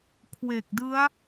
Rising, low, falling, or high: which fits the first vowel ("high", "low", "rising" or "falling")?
low